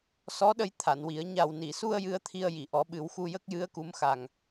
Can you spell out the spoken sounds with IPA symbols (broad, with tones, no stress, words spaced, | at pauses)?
sɔ˧˥ɗə˧j t̪ʰa˨˩˨nwi˨˩˦ə̯ ɲa˨˩wni˨˩˨su˧ə̯ jɨ˧ə̯t̪ʰi˧ə̯ ji˨˩˨ʔɔ˨˩˦ɓɨ˨˩˦wxu˧ jə˦˥k̚ jɨ˧˥ə̯ku˧˥m xa˨˩ŋ